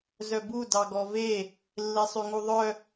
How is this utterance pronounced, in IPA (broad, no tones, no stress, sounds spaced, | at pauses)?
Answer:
z œ b u d ɑ ɡ ɔ v e | lː e sˤ ʉ ŋ u ðˤ œ